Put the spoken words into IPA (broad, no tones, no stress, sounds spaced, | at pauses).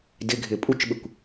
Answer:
d ɪ ɡʱ ɪ pʼ u t͡ʃ ɓ ɪ kʷ